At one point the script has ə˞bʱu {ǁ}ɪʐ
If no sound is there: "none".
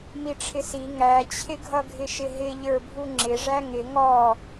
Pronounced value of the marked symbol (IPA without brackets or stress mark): ŋ͡ǁ